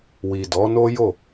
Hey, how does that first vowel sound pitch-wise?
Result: low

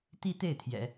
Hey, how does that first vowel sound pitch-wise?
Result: high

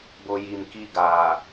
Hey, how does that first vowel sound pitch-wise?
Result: low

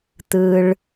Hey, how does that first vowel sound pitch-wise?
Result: low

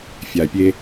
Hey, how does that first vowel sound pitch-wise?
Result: low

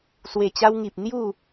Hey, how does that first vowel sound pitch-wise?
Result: low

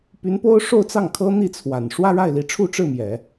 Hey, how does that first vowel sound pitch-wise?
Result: rising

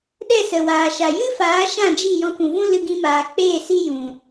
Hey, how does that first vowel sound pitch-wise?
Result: falling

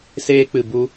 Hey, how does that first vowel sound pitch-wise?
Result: high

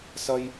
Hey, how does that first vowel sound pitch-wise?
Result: high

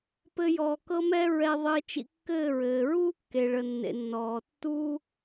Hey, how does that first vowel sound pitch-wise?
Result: high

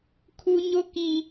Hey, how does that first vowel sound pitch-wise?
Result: high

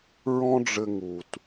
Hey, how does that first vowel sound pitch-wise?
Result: high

